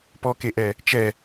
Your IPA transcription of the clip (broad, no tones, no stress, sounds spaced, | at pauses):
p ɔ k e ʔ ɛ | t͡ʃ ɛ